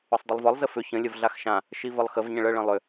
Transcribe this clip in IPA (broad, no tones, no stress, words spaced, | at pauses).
ɵsˤdˤʏlˠvɒlˠ zəfʏ çə̃ lʲəvɮaxʃã | ʃivəlˠxəv ɲə̃ɭə ɭə̃lˠʏ